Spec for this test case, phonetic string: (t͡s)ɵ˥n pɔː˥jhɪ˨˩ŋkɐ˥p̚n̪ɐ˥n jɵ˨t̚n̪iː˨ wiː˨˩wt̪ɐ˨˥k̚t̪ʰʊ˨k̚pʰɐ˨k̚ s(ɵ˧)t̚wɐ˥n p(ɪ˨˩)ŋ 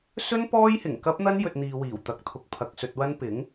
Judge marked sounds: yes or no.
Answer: no, yes, no

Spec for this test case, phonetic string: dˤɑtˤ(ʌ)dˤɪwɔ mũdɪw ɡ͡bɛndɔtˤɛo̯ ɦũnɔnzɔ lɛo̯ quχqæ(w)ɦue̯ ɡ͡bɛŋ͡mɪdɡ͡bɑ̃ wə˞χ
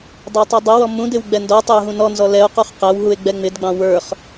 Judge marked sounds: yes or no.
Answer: yes, yes

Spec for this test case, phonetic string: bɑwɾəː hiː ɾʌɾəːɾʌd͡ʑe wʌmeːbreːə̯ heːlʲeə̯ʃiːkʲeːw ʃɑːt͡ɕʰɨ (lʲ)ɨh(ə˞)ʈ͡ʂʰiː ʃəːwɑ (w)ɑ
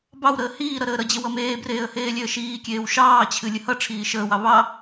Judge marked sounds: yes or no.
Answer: yes, no, no

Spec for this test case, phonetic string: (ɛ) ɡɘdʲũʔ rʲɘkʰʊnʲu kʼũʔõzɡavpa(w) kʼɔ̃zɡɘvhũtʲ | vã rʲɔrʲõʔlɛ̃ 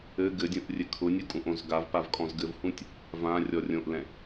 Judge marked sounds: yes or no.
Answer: no, no

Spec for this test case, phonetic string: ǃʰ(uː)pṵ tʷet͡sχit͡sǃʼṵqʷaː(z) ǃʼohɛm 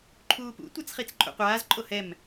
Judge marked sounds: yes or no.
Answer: yes, yes

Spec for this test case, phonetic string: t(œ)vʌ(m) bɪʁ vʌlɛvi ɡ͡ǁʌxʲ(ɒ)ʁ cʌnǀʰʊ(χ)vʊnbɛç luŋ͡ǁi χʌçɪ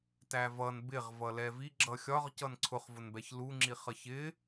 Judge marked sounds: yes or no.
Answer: no, no, yes, yes

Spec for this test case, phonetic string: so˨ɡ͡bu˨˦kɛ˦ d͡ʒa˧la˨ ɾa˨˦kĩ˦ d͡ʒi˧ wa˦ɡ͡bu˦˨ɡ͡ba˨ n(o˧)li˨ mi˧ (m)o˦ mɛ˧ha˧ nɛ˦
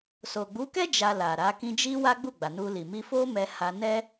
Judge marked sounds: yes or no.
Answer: no, no

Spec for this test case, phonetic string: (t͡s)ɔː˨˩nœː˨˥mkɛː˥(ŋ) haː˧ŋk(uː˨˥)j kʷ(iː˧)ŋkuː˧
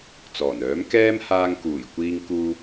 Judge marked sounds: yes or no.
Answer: yes, no, no, yes

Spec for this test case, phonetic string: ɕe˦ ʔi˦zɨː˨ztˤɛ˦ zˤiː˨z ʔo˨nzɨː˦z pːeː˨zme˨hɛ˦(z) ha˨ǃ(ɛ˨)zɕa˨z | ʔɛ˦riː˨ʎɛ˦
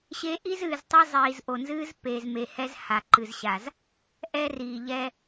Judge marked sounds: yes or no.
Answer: yes, no

